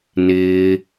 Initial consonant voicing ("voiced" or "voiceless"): voiced